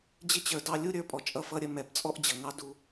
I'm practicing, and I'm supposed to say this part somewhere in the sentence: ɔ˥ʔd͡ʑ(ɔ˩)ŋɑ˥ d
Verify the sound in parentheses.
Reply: incorrect: ʌ˩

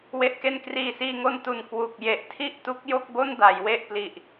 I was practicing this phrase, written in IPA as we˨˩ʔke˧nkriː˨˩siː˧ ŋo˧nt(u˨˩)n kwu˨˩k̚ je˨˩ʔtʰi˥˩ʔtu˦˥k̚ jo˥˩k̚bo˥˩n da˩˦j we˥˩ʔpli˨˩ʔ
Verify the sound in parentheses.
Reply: correct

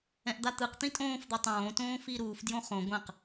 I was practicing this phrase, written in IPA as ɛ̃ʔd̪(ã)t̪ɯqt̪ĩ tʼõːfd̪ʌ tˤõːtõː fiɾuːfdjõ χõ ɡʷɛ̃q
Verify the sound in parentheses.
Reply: incorrect: a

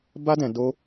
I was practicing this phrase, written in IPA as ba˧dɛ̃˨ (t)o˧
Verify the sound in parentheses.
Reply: incorrect: d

